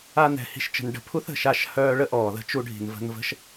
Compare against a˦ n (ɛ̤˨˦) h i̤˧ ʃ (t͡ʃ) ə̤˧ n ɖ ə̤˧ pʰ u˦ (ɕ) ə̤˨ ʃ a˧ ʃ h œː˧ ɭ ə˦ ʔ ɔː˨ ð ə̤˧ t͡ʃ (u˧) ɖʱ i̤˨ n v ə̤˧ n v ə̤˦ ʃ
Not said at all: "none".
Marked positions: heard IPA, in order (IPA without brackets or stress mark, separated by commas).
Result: ɛ̤˨˦, t͡ʃ, θ, u˧